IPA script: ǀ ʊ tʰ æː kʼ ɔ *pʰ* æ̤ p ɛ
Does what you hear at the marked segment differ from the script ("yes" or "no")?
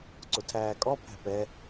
no